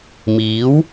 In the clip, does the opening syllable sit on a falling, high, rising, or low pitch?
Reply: rising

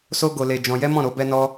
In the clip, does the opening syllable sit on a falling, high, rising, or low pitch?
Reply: high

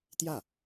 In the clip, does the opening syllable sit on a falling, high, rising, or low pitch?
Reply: falling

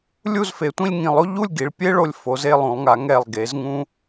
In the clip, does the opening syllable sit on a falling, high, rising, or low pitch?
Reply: falling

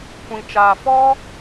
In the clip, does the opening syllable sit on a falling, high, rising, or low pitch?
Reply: low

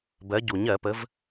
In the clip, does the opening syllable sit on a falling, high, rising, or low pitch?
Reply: rising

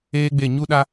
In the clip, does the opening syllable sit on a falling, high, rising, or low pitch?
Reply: high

